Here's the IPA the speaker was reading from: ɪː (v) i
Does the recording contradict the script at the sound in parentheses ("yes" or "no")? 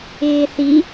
yes